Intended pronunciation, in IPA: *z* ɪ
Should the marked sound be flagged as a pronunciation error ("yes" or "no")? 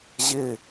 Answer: yes